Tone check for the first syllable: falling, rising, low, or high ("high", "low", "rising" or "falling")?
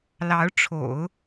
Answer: rising